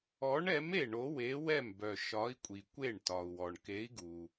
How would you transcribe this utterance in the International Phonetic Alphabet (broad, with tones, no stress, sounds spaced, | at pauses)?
ɔ˨˥ ɳ ɛ˨˥ m e˥˩ ɳ o˨˥ w e˨˥ w ɛ˥˩ m b œ˩ ʃ ɒ˨˥ i̯ kʷʼ i˩ kʷ e˥˩ ɳ t ɒ˩ u̯ w ɔ˩ ɳ k e˨˥ i̯ ɡ u˩